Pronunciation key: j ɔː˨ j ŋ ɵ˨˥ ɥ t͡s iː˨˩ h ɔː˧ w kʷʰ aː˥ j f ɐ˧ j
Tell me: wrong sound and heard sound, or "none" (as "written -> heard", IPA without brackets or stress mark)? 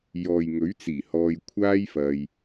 w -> j